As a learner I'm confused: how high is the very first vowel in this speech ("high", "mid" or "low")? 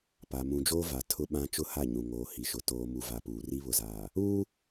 low